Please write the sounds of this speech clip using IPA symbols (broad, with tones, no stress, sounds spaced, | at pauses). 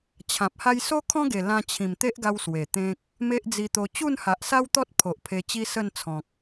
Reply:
t͡ɕʰ ã˨ p̚ h a˦ j s o˦ kʰ ɔ̃˦ ɡ e˨˩ l ã˧ t͡ɕʰ ĩ˨˩ m t̪ e˦ ʔ ɡ a˧ w s w e˨˩ t̪ ẽ˦ k̚ | m e˦ ʔ d͡z i˧ t̪ o˧ t͡ɕ u˥˧ n h a˨ ʔ s a˦ w t̪ ɔ˦ t̚ pʰ o˨ ʔ pʰ e˧ t͡ɕ i˦ s ə˥˧ n t͡sʰ ɔ̃˨ k̚